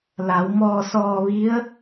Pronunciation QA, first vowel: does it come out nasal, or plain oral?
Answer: oral